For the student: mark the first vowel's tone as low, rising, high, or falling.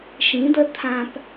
rising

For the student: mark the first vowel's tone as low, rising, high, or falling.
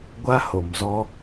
high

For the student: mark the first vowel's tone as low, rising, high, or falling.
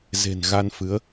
low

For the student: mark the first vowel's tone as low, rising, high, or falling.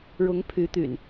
rising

